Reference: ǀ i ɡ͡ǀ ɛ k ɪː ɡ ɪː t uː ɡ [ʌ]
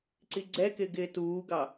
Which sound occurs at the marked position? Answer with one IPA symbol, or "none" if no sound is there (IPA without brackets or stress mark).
ɑ